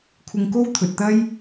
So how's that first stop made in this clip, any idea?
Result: aspirated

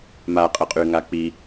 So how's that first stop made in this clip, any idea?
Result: ejective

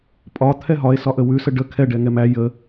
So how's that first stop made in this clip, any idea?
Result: ejective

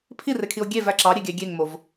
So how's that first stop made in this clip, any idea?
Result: aspirated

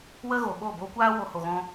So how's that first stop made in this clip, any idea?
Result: implosive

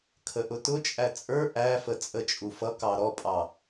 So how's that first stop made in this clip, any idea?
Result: aspirated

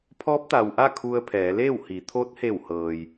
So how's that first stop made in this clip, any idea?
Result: aspirated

